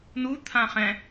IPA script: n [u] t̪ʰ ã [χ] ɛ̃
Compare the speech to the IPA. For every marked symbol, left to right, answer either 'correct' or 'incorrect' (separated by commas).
correct, correct